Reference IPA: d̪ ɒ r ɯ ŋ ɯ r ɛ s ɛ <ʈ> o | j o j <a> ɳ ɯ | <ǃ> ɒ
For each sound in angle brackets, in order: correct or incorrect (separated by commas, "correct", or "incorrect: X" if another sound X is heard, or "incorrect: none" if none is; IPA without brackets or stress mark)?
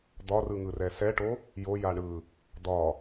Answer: correct, correct, incorrect: d̪